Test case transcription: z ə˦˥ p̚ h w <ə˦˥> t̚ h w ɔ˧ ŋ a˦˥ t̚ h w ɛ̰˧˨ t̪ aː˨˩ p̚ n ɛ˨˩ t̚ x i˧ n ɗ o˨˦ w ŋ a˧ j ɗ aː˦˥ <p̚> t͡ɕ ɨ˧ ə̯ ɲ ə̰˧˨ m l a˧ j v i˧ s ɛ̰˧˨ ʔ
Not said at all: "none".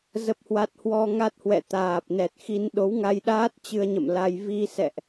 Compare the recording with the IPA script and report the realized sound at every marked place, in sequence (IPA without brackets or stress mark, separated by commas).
a˦˥, t̚